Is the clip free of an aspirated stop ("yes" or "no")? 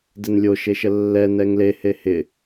yes